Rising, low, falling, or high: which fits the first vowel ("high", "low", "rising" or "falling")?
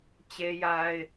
high